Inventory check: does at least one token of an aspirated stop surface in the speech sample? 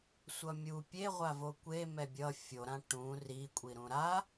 no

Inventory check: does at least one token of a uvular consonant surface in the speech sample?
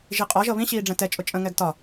yes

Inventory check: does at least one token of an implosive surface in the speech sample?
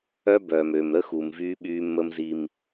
yes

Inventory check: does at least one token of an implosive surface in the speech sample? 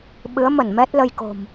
yes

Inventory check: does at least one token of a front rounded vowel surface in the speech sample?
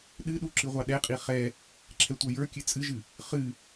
no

